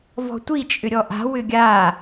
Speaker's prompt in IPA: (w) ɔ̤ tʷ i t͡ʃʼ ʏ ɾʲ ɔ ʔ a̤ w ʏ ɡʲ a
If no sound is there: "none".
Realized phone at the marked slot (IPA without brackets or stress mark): v